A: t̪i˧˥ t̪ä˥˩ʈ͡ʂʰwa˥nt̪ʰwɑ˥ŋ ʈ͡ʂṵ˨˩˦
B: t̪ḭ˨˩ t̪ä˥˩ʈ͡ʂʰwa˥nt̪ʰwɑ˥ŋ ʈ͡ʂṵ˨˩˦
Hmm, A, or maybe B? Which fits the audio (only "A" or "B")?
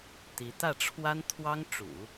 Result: A